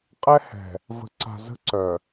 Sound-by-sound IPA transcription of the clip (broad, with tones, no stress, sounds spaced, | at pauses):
qʼ ɛ˦ h ɛ̤˨ | v ə̤˨ ǀ a̤˨ z ə̤˦ ǀ œ˨